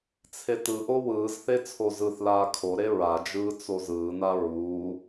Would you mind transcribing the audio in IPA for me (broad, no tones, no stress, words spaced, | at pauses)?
t͡sʰetɯʔo wɯːzθe t͡sʰozɯθlaː kʰoɾe ɹad͡ʒɯː t͡sozɯːna ɹu